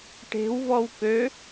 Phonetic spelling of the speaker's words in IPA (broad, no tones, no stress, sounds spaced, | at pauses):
ʈ e̤ w v ɔ w k ø